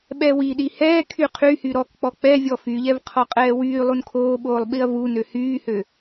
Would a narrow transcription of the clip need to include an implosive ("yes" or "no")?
yes